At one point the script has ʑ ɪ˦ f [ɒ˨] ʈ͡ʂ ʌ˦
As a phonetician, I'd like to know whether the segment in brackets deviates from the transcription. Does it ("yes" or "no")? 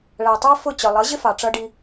yes